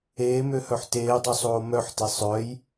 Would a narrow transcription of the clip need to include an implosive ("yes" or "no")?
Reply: no